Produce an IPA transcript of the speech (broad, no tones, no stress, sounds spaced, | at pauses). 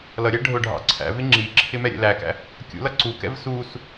l ʌ ɾʲ æ ɖʱ ʊ ɖʱ ɑ̰ ǀʰ æ̰ v ɪ ŋ͡ǁ i ǁʰ ɪ m ɛ ɾʲ ɛ̰ l æ k æ̰ | kʲ ṵ l ʌ ǀ u k ɛ̰ v s u s